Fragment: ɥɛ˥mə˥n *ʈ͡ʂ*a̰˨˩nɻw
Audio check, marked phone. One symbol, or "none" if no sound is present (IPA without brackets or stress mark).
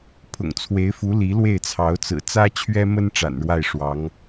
ʈ͡ʂ